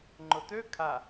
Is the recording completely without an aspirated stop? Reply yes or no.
no